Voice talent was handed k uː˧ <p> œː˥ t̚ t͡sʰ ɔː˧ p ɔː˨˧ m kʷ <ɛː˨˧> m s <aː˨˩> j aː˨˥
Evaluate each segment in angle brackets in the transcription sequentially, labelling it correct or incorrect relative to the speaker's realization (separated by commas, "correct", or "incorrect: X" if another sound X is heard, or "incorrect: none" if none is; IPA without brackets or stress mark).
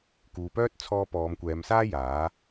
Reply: correct, correct, incorrect: aː˥